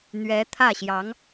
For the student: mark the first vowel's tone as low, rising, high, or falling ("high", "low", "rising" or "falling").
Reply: rising